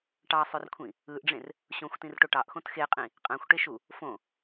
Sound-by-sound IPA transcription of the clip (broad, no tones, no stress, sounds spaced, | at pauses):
ʈ ɑ sˤ ø r kʷʰ ĩ | ɯ ʔ ɖ͡ʐ ẽ r | ɕ õ xʷ t ĩ r ʈ o ʈ ɑ ʔ x õ t x e qʼ ĩ | qʼ æ̃ xʷ ʈ e ʃ u | f õ